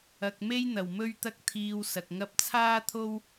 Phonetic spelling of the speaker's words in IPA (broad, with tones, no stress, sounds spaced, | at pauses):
ɐ˨ k̚ m e˥ j n̪ ɐ˨˩ w m ɵ˥ ɥ t̪ ɐ˥ k̚ t̪ʰ iː˧ w s ɐ˨ k̚ ŋ ɐ˥ p̚ t͡sʰ aː˥ t̪ʰ o˥ w